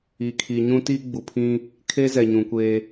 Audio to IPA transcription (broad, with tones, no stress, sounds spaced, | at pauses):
i˨ kʰ i˨ ɲ ũ˦ t i˦ ɡ͡b u˨ pʰ ĩ˦ | kʰ e˦ z ɛ˨ ɲ ũ˨ kʷ e˦